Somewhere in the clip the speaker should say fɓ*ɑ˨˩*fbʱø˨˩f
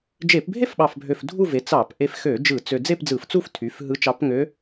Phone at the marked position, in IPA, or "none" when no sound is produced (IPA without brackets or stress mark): ɑ˨˩